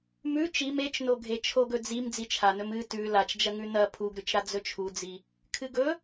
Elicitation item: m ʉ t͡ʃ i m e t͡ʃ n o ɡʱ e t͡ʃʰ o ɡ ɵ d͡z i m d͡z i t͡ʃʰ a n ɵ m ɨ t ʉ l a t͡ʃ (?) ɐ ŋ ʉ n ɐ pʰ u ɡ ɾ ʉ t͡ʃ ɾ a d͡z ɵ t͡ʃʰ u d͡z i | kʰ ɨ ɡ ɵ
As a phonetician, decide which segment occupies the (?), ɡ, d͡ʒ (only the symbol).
d͡ʒ